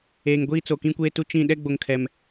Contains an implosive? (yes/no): yes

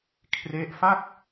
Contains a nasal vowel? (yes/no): no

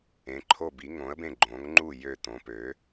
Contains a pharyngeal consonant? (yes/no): no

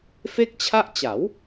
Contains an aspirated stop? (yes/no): yes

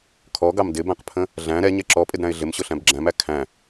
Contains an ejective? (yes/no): yes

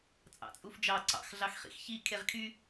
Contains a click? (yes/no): yes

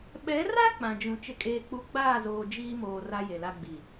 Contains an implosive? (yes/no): yes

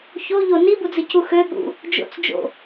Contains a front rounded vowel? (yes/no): yes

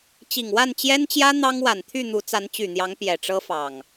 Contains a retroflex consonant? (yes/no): yes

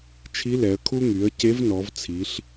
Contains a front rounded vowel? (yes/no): yes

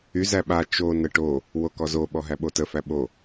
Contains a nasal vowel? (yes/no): no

